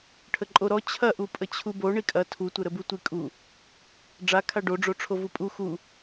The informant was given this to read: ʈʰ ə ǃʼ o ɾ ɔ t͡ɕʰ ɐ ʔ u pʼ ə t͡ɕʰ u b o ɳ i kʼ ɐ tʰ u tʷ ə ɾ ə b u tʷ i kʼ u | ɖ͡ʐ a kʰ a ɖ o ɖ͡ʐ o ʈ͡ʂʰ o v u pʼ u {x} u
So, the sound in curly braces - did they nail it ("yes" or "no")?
yes